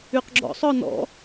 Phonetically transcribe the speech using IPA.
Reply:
y q ɡ͡ǁ ɔ̰ sˤ ɔ n ɔ̰

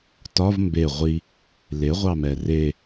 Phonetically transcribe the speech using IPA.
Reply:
t ɒ v m b e ʁʷ i | l e ʁʷ ɑ m ɛ r e

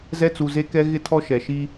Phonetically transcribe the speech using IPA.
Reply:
z ɛ˦ t͡s u˨ z e˦ k ɛ˦ ɣ ɪ˦ tʰ ɔ˦ ʃ ɛ˨ ʃ i˦

